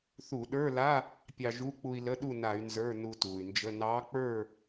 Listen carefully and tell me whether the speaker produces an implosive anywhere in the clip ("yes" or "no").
yes